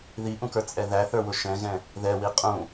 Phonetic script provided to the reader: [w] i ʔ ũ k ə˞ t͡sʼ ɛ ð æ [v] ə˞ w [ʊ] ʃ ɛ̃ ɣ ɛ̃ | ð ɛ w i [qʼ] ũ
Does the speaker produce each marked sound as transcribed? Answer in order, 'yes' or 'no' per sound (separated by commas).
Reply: no, no, yes, yes